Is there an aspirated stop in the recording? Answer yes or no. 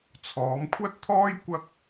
yes